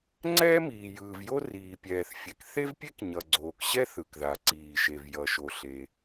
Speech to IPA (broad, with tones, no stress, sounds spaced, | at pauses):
ŋ͡ǀ ɛː˥ m iː˩ j ɯː˩ v j o˥ r iː˩ pʲ ɛː˩ θ fʲ ɛ˩ k θ e˥ v pʲ e˥ k ɲ ʌ˩ ɡ͡ǀ oː˩ k ɕ ɛ˥ θ ɯ˩ k ð a˩ ǀ iː˩ ʃ e˩ v j ʌ˩ ʃ o˩ ɬ e˩